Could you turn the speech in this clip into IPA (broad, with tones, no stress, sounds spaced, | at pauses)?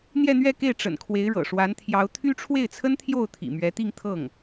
n̪ j ɛ˥˧ n̪ ɥ ɛ˥˧ k e˥˩ ɪ̯ ʈ͡ʂ ə̰˨˩ n kʰ w e˧˥ ɪ̯ ɻ ɤ̰˨˩ ʂ w a˧˥ n t̪ʰ j ɑ˧˥ ʊ̯ t̪ʰ y˥ ʈ͡ʂʰ w e˥˩ ɪ̯ t͡sʰ ə˥ n t̪ʰ j o˥˩ ʊ̯ t̪ʰ ḭ˨˩ m ɥ ɛ˧˥ t̪ i˥˧ ŋ t̪ʰ ɤ˥˩ ŋ